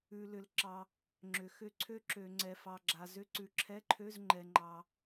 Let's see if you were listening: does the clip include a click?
yes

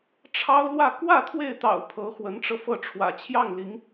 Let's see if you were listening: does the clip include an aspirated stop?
yes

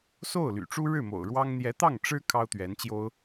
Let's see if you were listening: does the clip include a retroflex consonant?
yes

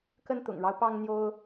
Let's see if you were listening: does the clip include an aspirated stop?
no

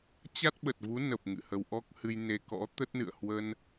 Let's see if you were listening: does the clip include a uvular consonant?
no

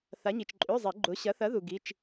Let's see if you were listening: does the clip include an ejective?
yes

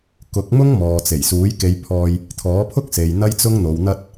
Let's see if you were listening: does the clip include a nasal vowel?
no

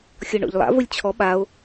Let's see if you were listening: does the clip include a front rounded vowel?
no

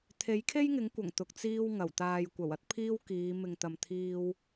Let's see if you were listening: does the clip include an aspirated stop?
yes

